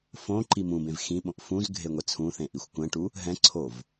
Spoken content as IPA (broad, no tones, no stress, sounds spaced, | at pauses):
f õ ǃ i m ũ b ẽ v x ĩ ɓ õ ʔ f ũ z ɡʱ e ŋʷ ɛ t͡sʰ ũ θ ẽ ʔ i xʷ kʷ ɛ̃ ʈ u | ɦ ɛ̃ ǀʰ o v